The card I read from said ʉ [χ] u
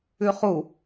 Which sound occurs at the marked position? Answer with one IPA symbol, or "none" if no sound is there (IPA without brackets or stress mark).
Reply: χ